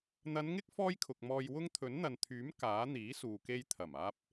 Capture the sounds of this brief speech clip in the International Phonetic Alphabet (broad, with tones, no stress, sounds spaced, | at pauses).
n̪ ɐ˨˧ n ŋ ɪ˥ k̚ f ɔː˥ j kʰ ʊ˨ k̚ m ɔː˧ j w ʊ˥ ŋ t̪ʰ ɵ˨˥ n n̪ ɐ˨ n t̪ʰ yː˨˥ m k aː˨˥ n̪ iː˨˥ s uː˨ k e˧ j t̪ʰ ɐ˨˩ m aː˧ p̚